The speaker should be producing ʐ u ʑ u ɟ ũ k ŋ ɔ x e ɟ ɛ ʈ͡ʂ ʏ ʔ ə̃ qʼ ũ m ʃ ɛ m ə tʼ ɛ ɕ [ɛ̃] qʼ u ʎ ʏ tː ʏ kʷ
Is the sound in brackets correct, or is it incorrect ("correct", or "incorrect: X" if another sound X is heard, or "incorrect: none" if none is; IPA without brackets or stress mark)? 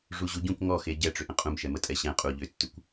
correct